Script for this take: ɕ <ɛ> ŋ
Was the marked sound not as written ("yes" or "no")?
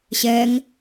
no